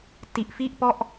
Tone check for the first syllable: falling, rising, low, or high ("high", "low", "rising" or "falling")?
low